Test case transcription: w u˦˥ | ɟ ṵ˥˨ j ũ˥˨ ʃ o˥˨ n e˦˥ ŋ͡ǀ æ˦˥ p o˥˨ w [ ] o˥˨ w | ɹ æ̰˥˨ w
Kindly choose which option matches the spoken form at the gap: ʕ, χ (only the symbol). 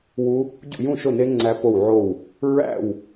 ʕ